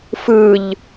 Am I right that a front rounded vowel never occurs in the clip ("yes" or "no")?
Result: yes